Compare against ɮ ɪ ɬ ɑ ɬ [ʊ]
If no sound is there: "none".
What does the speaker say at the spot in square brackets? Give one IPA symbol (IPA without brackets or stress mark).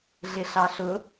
ʊ